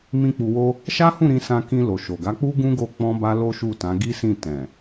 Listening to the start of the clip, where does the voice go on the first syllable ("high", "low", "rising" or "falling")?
high